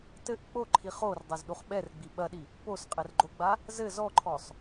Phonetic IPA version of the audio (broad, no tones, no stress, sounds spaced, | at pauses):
t ɘ ʔ k͡p o ǃʰ i χ o r dˤ a z ɗ u χ ɓ ɛ r ɡ͡b i ɓ ɐ ɗ i | p o s qʼ ɛ r ɡ͡ǃ o ɡ͡b a | z ɘ z ɔ ǃʰ ɔ sˤ